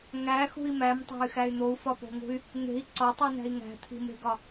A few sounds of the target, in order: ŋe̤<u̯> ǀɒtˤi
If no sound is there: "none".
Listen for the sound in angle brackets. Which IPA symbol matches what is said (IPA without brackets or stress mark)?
i̯